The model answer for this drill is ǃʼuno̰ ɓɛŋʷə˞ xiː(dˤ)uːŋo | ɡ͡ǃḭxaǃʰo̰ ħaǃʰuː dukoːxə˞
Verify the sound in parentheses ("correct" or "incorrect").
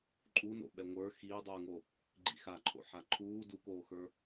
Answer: correct